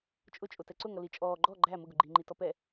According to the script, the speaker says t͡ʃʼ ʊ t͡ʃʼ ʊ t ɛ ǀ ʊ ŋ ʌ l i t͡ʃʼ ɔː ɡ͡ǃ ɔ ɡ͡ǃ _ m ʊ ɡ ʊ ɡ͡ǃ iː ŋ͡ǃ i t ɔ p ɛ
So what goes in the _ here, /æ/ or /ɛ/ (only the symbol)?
æ